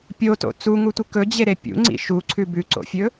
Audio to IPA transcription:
pʲ o t o̰ t͡s u ŋ u tʷ ɨ k ɵ d͡ʑ e ɾ e pʲ ṵ ŋ͡ǀ ḭ ʃ u ǀʰ ʉ b ʉ ǀ o̰ fʲ ɵ

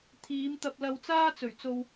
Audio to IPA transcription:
t̪ʰ iː˨˧ m t̪ ɐ˧ p̚ l ɐ˧ w t͡s aː˥ t͡s ɵ˨˩ ɥ t͡s o˧ w

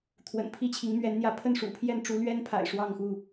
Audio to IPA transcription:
t̪ʰ w ə̰˨˩ n pʰ i˥˨ t͡ɕʰ i˨˦ ŋ m ɥ ɛ˨˦ n n̪ j ä˨˦ pʰ ə˥˨ n ʂ ṵ˨˩ pʰ j ɛ˥˨ n ʈ͡ʂ u˨˦ l ɥ ɛ˦ n pʰ a̰˨˩ ɪ̯ ʂ w ɑ˥˨ ŋ x u˥˨

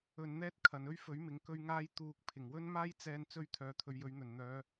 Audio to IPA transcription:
ɵ˧ n n̪ ɛː˥ t̚ kʰ ɐ˨ n ɵ˥ ɥ f ɵ˨˥ ɥ m ɪ˨ ŋ k ɵ˥ ɥ ŋ aː˥ j t̪ uː˨ k̚ pʰ ɪ˨˩ ŋ w ɵ˥ n m aː˥ j t͡s ɛː˧ n t͡s ɵ˥ ɥ t̪ʰ œː˨ t̪ʰ ɵ˨˧ ɥ j ɵ˨˥ ɥ n̪ ɵ˨˩ n n̪ œː˨˧

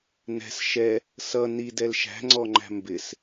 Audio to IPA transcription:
n ɛ̤ s ʃ ɛ | s ʌ n i d ɛ l ʃ æ̤ ŋ͡ǀ ɔ ŋ͡ǃ æ̤ m b ɪ s

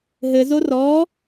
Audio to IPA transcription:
ɦ ɘ z o r ɔ

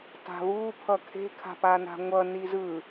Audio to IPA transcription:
t a̤ β uː pʰ ʌ kʰ e̤ kʰ a̤ p a n a̤ ŋʷ ʌ n i z ɯ

